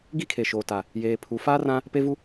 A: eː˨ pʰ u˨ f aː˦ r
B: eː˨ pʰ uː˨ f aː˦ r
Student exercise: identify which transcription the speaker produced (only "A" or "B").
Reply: A